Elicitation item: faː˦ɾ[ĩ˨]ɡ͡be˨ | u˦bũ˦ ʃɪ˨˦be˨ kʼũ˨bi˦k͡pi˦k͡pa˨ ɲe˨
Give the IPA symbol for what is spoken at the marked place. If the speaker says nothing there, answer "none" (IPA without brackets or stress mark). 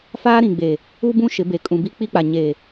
ĩ˨